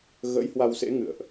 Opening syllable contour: rising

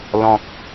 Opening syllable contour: low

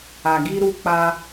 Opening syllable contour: low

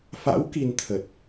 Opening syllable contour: rising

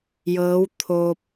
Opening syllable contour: rising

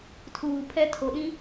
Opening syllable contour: low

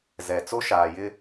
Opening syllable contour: low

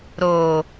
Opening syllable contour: low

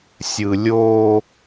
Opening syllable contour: low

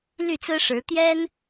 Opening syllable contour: falling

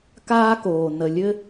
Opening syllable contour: high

